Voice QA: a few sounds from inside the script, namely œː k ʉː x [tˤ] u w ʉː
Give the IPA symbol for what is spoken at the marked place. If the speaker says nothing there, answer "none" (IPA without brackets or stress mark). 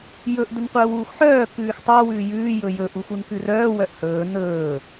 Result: tˤ